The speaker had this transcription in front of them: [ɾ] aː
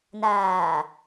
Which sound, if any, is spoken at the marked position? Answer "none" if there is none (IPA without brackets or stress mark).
n